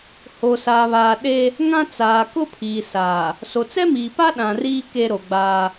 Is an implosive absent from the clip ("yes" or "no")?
no